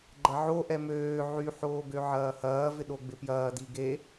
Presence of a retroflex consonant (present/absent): absent